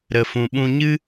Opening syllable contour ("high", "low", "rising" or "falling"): low